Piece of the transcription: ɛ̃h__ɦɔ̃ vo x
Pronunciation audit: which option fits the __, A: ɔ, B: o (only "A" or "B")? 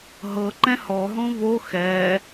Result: A